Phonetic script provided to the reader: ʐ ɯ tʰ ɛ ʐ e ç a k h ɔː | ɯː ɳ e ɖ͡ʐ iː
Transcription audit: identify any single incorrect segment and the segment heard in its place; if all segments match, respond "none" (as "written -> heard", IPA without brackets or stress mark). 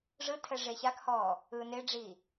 ɳ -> n